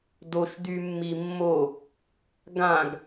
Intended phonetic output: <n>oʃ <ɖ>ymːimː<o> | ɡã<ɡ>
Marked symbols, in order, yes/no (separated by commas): no, no, yes, yes